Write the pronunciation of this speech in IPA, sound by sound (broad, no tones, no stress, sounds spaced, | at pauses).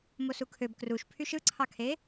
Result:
m o s u kʰ ø b k r u ʃ pʰ y ʃ ɯ ǀʰ ɑ kʰ e